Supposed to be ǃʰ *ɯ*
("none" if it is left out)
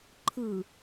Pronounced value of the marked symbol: ɯ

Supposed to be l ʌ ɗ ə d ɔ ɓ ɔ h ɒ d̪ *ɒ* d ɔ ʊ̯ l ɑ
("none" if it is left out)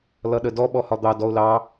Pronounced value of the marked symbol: ɑ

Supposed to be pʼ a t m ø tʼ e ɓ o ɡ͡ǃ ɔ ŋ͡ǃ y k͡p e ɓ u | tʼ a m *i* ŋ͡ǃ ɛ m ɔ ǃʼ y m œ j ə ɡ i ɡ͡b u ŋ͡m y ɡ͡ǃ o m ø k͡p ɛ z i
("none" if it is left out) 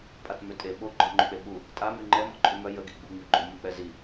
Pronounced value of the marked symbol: y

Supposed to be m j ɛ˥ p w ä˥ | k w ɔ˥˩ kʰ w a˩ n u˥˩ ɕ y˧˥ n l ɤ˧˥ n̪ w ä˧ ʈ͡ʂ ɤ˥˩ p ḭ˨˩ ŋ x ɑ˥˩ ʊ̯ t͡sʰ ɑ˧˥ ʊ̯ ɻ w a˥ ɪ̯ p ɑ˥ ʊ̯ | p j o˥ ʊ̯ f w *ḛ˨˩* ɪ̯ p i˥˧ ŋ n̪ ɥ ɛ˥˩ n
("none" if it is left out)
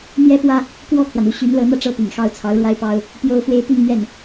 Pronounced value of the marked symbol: e˥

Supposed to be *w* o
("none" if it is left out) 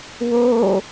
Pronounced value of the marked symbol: w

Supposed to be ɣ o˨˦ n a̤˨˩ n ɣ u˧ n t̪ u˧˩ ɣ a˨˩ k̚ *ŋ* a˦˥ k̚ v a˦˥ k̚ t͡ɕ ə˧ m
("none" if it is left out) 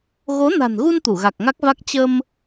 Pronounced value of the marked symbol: ŋ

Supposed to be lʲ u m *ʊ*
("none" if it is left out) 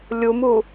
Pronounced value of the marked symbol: u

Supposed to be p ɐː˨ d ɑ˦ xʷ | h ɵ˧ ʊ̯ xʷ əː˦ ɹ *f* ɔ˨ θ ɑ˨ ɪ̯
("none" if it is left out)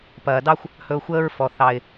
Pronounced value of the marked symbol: f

